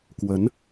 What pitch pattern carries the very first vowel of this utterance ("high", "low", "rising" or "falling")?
rising